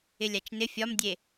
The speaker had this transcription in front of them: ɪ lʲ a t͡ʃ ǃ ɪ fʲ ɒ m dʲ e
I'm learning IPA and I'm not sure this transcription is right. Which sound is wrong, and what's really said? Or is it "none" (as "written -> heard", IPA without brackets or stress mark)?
ǃ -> n